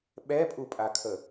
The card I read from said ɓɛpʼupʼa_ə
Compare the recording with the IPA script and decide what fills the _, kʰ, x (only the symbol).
kʰ